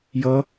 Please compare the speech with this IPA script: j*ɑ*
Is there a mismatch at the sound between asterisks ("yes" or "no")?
yes